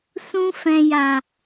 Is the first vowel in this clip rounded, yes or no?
yes